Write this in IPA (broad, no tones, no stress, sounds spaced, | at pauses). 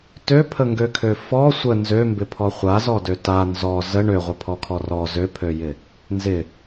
t ø pʰ ə ŋ ɡ ø kʰ ø f ɔ sʷ ə n z ø m b ɪ pʰ ɔ χʷ a z ɔ d ø t a n z ɔ z ə ɳ ø ʁʷ ɪ pʰ ɔ kʰ ɔ r ɔ z ø pʰ ø j ɪ | n z ɪ